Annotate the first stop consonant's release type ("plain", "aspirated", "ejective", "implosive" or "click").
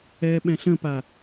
implosive